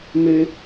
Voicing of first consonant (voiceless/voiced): voiced